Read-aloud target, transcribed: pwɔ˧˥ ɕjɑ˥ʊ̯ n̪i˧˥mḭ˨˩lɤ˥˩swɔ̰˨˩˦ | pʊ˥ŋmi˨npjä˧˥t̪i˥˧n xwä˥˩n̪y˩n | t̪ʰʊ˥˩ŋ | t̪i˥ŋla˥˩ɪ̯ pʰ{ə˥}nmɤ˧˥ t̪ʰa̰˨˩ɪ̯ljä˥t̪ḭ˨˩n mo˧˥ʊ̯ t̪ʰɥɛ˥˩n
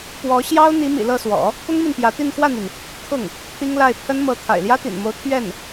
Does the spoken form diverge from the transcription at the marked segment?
no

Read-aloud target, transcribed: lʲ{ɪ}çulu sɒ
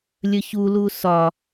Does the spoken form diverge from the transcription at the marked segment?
yes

